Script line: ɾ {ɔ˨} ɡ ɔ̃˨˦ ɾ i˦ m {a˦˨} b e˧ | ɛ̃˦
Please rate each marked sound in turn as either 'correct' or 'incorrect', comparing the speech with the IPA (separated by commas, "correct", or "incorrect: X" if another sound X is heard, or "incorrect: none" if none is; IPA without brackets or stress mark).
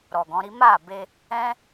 correct, correct